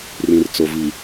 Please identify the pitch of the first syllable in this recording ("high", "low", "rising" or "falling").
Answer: low